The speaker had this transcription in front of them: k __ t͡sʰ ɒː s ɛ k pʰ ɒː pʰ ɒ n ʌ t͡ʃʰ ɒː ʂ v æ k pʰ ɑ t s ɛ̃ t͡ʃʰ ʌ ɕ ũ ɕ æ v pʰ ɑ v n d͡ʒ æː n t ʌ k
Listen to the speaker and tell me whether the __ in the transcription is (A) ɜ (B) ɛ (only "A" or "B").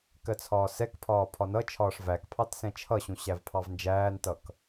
A